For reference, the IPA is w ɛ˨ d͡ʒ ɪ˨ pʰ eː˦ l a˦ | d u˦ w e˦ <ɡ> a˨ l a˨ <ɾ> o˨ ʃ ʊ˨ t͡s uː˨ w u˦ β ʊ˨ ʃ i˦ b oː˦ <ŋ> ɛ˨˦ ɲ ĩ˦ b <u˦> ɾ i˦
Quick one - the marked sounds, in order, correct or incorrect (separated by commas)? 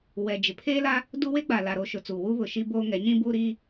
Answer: incorrect, correct, correct, correct